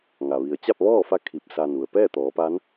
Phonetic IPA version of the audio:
ŋ a˩ ʋ i˩ ə̯ t͡ɕ a˥˨ p̚ ʋ ɔː˥˨ f a˧˥ kʰ i˧˩ p̚ s a˧ n u˩ ə̯ p ɛː˥˨ t̪ ɔː˩˧ p a˧˥ n

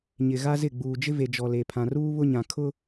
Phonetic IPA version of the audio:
ɲ ɪ˨ ɣ a˦ z ɪ˦˨ ɡ͡b uː˨ d͡ʒ ɪ˦ v e˨ d͡ʒ ɔ˨ l e˨ pʰ ã˨ r uː˦ β ʊ˦ ɲ ã˨ kʰ ʊ˦

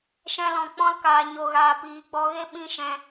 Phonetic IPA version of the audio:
ʃ ɛ̃˧ l ɔ̃˨ k͡p ɔ̃˧ l k aː˨ ɲ o˨ ɣ aː˨ p iː˨ ɡ͡b ɔ˧ ɣ e˦ ɓ ĩ˦ ʃ ɛ̃˧

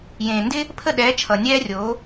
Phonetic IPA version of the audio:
j ẽː˨ n d ɪ˦ | pʰ ə˦˨ ɗ ɛː˨˦ t͡ʃʰ ʌ˨ nʲ ɛː˦ rʲ oː˨˦

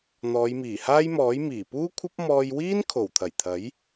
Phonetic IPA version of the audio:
n̪ ɔː˨˧ j m iː˨˩ h aː˥ j m ɔː˨˥ j m iː˨˩ p uː˥ kʷʰ ɐ˥ p̚ m ɔː˧ j w iː˥ n kʰ o˨˩ w t̪ʰ ɐ˨˩ j t̪ʰ ɐ˨˥ j

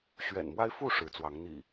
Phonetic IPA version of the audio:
ɕ ɥ ɛ̰˨˩ n m w a˦ ɪ̯ f u˥˨ ʂ ɻ̩˨˦ t͡s w ɑ˨˦ ŋ n̪ ḭ˨˩

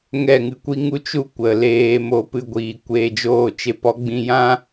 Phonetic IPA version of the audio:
ŋ ɛ˦˨ ŋ ɨ˧ kʷ i˦ ŋ u˦ t͡ʃ u˦ kʷ ə˨ l eː˧ m o˧ p ɨ˧ ɡʷ iː˨ kʷ eː˧ d͡ʒ oː˦˨ t͡ʃ e˧ p ɔ˨˦ ɡ͡b ĩ˧ j ã˦

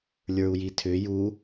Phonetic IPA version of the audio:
lʲ ə˞ u̯ j i tʰ ʏ j u

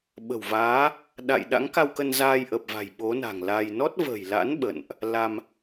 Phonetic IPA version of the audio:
ɓ ə̤˨˩ w v aː˨˦ | ɗ a̰˧˨ j ɗ a̰˧˥ ŋ k a˧ w k ə˧ n z aː˧ j ʔ ə˨˩ p̚ v a̤˨˩ j ɓ o˨˦ n a̤˨˩ ŋ l a˧ j n ɔ˦˥ t̚ v ə̤˨˩ j l a̰˧˥ n ɓ ə̰˧˨ n ʔ | l a˧ m

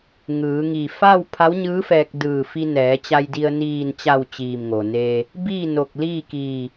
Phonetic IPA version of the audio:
ŋ ɯː˩˧ ŋ i˧˩ f a˥˨ w pʰ a˧˥ w ɲ ɯː˧˥ f ɛː˧ k̚ d ɯː˧˩ f i˧ n ɛː˩˧ t͡ɕ a˧ j d i˧ ə̯ n iː˧˩ n t͡ɕ a˧˩ w t͡ɕ iː˧˩ m ŋ o˩ n eː˧ | b iː˥˨ n o˧˩ k̚ l iː˥˨ k iː˧˩

